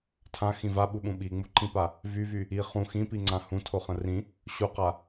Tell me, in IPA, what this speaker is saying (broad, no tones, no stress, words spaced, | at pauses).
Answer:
tʰãxĩ vaɓuɓũ ɓiŋ͡muǃĩpa | vyvy | i χũ xĩpiŋ͡ǀã hũtʰoχə̃ rĩ | ɕuqa